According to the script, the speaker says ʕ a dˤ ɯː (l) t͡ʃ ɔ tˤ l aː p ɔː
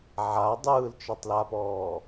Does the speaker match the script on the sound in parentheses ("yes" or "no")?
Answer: yes